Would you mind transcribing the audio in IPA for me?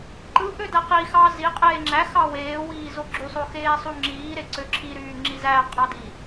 ǃ ɯ ʔ ø d æ q i x ɑ z i qʼ eː ŋ͡ǁ æ x ɑ w eː w iː z o ɡ͡ǁ y sˤ o x eː sˤ u ŋ͡ǁ iː ɾ e ǀ ø ǁʰ i ɾ yː ŋ͡ǁ i z æ qʼ ɑ d i

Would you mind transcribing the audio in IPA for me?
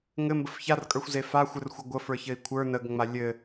ŋ ɘ m b ə f ç a r kʼ ə˞ xʷ z e f a xʷ ɘ r xʷ ə ɡʷ ə f ə˞ ç ɘ i̯ kʷʰ ə˞ n ə ɡ ŋ͡m a lʲ ɘ

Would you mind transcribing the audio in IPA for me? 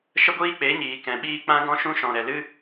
ʃ ə˦ ɡʷ iː˦ k͡p e˨˦ ɲ iː˨ k ɛ̃˨ ɓ iː˦ k͡p ã˦ ɡ ɔ̃˦ ʃ ũ˦ ʃ ɔ̃˨ ɾ ɛ˨ l ɨ˦

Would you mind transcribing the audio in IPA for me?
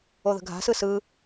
o ð ə̤ ɡʱ a̤ s ɯ s ɯ

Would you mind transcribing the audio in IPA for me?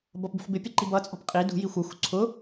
b ʌ p b ṳ ħ b ɪ pʲ ɛ ǃ i b ʌ t͡sʼ ɔ̤ p qʼ i d ṳ j i xʷ ə˞ xʷ ṳ ǀʰ ʊ

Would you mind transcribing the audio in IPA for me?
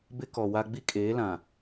b ɪ˦ k ɔ˨ w a˦ ɡ͡b i˦ kʼ eː˨˦ l ã˨

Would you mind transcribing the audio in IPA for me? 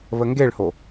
β ə ŋ ɡ e ɭ h o

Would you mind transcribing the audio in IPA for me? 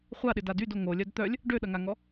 χʷ a ɗ ɪ d a d y d o ŋ o lʲ œ d t̪ œ lʲ | ɖ ø ɗ ɐ ŋ a ŋ ɔ

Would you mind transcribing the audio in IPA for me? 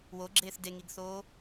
w o ɡ͡ǁ eː θ d e ŋ i ɡ θ oː

